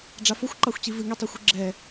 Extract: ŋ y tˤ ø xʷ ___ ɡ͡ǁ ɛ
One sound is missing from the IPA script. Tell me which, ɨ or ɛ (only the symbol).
ɨ